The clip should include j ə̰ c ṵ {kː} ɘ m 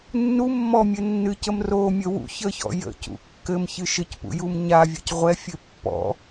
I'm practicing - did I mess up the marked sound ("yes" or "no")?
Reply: no